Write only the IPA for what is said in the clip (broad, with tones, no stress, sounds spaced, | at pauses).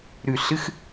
ɾ ʉ˧˩ ɬ ɨ˧˥˧ x